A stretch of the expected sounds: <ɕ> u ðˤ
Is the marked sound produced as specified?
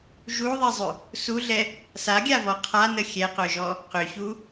no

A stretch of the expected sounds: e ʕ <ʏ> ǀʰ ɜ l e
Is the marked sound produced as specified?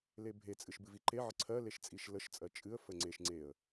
no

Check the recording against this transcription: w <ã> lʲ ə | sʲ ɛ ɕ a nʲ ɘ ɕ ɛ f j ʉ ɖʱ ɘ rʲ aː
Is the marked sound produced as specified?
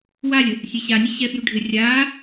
no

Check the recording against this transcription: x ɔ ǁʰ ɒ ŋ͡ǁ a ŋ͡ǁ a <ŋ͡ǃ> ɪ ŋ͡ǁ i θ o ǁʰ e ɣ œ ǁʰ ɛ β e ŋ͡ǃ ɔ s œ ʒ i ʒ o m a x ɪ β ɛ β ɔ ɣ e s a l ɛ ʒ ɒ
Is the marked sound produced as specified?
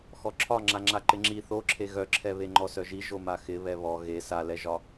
no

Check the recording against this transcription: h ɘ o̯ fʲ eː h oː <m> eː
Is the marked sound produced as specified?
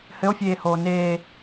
no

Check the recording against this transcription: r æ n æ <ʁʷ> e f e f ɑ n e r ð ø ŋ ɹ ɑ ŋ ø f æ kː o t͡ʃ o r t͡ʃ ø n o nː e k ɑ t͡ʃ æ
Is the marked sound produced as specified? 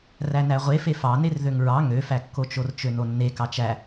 yes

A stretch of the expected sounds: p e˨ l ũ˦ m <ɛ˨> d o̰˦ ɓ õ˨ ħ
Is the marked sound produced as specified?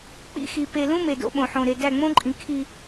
no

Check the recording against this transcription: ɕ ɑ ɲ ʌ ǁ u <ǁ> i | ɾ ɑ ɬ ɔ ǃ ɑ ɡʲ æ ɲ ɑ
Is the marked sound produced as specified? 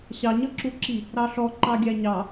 yes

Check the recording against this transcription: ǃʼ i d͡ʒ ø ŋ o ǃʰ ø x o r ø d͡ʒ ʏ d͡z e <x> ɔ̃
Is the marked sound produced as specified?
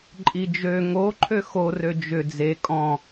no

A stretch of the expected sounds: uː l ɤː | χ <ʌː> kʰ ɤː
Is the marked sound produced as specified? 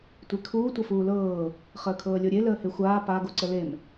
no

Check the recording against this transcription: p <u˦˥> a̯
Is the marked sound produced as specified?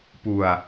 no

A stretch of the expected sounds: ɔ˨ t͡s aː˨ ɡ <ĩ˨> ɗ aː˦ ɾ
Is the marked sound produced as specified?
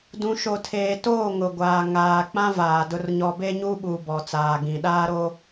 yes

